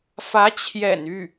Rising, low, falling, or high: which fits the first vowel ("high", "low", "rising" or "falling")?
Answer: rising